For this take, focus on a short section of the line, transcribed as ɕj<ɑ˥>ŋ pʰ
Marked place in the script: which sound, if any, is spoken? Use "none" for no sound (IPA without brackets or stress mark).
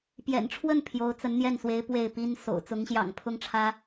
ɑ̰˨˩